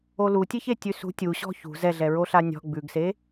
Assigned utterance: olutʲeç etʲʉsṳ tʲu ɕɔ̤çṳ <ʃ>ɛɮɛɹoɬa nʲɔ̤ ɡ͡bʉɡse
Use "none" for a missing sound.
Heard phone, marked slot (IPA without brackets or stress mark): z